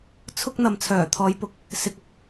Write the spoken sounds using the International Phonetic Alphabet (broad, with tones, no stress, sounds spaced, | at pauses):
t͡sʰ ʊ˥ k̚ n̪ ɐ˨ m t͡sʰ œː˨˩ t̪ʰ ɔː˨˧ j p ʊ˧ k̚ | s ɪ˧ k̚ ʊ˥ k̚